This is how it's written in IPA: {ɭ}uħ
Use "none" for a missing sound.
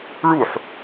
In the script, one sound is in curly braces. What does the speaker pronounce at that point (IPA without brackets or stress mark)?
ɭ